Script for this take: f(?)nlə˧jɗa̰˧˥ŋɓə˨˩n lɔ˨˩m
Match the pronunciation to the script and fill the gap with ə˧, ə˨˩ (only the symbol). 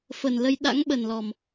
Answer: ə˨˩